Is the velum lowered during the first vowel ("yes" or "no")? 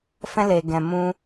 yes